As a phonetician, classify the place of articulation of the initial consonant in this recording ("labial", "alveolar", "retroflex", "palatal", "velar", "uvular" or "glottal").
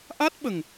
glottal